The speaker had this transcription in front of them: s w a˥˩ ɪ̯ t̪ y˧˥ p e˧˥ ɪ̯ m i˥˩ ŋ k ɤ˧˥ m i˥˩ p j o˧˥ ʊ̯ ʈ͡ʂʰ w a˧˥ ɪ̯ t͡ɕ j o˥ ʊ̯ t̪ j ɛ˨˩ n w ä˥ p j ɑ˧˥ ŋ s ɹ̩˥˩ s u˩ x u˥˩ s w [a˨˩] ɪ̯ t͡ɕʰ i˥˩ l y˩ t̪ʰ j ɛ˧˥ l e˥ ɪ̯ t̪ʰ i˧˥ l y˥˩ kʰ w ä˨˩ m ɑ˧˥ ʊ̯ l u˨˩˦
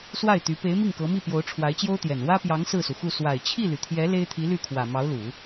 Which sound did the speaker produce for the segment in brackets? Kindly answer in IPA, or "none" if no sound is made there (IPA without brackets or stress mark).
a˨˩